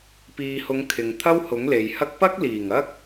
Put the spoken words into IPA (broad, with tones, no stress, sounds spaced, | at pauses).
p iː˨ h ʊ˨˧ ŋ kʰ ɪ˨ ŋ t̪ʰ ɐ˥ w h ʊ˨˥ ŋ l e˨ j h ɐ˥ k̚ p ɐ˥ k̚ l iː˨˩ ŋ ɐ˥ k̚